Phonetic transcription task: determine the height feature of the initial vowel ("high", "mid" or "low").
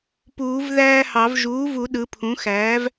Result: high